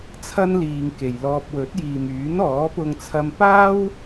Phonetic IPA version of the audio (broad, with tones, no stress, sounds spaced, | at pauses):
t͡sʰ ɐ˥ n l iː˧ ŋ k e˨ j l ɔː˧ p̚ w ɵ˨˥ t̚ j iː˨ m yː˨˥ n ɔː˨˥ p ʊ˧ ŋ t͡sʰ ɐ˧ m p aː˥ w